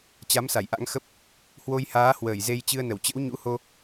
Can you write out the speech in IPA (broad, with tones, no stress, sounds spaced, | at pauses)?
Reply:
t͡ɕ a˨˦ m s a˧˩ j ʔ a̰˧˥ ŋ x ə˦˥ p̚ | h w o˧ j h aː˨˦ h w əː˧˩ j z e˧ j t͡ɕ ɨ˧ ə̯ n ə˧˩ w t͡ɕ ə̰˧˥ w ɲ ṵ˧˥ h o˧